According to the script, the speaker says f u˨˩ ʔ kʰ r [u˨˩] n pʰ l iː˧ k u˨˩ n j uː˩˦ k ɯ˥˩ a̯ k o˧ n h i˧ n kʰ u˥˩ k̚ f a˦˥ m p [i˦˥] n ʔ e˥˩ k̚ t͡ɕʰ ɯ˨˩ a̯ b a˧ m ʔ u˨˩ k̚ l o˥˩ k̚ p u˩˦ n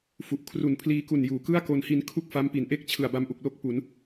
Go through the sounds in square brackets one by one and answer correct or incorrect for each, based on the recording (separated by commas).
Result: correct, incorrect